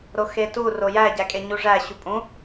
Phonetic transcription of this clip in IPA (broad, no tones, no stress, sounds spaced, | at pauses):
ɾ o x e t u r o j æ ɟ æ kʼ e ɲ u ʐ æ ɕ u pʼ ũ